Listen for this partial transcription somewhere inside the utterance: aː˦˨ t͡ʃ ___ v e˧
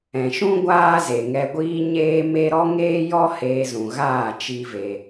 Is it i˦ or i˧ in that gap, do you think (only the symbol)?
i˦